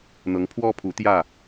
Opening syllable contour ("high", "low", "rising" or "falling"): rising